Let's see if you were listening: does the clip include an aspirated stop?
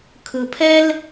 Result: yes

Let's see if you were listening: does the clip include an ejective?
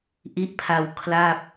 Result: no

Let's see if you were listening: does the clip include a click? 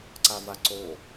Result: yes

